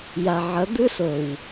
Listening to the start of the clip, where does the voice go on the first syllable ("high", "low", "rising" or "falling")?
low